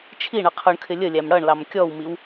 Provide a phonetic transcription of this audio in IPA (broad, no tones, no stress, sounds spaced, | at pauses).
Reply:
t͡ʃʰ i ɳ ʌ qʰ ʊ ɳ kʰ ɪ lʲ ə lʲ æ m ɽ ʌ ɳ l ɑ m kʲ ɔ w m i w